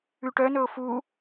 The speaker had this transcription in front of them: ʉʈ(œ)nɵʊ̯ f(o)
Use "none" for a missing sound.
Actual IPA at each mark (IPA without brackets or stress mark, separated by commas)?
œ, u